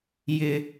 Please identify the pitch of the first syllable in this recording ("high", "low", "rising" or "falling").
high